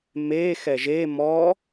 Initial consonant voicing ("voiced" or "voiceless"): voiced